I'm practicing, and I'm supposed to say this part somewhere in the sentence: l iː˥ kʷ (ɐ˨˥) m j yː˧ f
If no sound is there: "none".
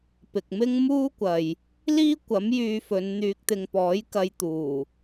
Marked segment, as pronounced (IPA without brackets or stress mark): ɐ˨˥